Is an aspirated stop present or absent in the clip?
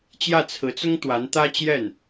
present